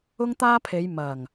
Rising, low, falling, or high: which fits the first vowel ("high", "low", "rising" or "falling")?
high